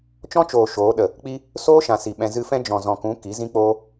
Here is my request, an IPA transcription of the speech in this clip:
t͡ʃ ɔ̃˦ t͡ʃ oː˨ ʃ oː˨˦ ɗ ə˨ | k͡p i˦ | s oː˦ ʃ ã˨ s i˨ ɓ ɛ̃˧ z ɨ˧ f ɛ̃˦ d͡ʒ ɔ̃˨ z ɔ̃˨ k ũ˨˦ k i˨˦ z ĩ˦ k͡p oː˦

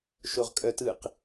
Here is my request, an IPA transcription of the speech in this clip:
ʃ o ʁ kʼ œ t ɯ q

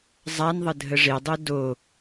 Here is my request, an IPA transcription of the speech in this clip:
zˤ a n ðˤ ə dʱ ə ʐ e dˤ ø d o

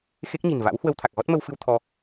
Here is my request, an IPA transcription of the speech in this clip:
x e˦˥ k̚ ɲ i̤˨˩ n v a̰˧˥ w h w ə˧ w t̪ʰ a˨˩ k̚ ɣ ɔ˦˥ t̚ m ə˧ w f ɨ˧ w t̪ʰ ɔ˧

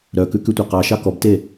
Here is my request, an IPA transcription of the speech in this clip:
ɾ œ k ʉ k ʉ tʷ ɑ q ɑ ʃ ɑ k ɔ b t e

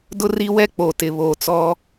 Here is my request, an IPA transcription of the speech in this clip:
d ʊ˦ r i˦ w ɛ˦ k͡p o˨ t ɪ˨ β oː˨ t͡s ɔ˦

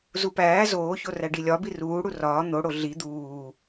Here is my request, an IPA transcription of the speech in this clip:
z u p æː z oː ç o r æ ɖ i lʲ ɒ b i r uː ɽ u r ɒː n̪ o ɽ o ɮ i d̪ uː

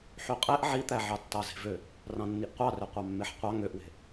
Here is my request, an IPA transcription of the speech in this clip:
ħ y qʼ e ʔ ʕ i t̪ æ ʕ ɑ tː ɑ z e̤ v ø | r ɑ̃ nː i ʔ qʷ ɑ r ø qʷ ɑ mː e ħ qʷ ɑ ŋ ø ʔ w e̤

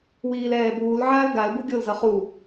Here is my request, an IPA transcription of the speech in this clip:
w iː l ɛː b uː l ʕ aː l ɡ a l b u ɡʲ o l z ʌ χ u

